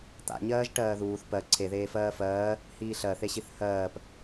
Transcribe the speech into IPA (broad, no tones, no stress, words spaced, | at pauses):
t̪a̰ɲɜːʒ ʈɜːðuːθ pɜ ǀʰeðeːfɜː fɜː | hiːɬɜθeɕiθ hɜːp